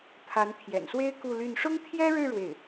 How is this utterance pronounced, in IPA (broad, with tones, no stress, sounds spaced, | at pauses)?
t̪ʰ a˧˥ n t̪ʰ j ɛ̰˨˩ n s w e˥ ɪ̯ k u˥˧ l y˥˩ n ʂ ʊ˥ ŋ t̪ʰ j ɛ˥ ɻ ɻ̩˥˧ ɻ w e˥˩ ɪ̯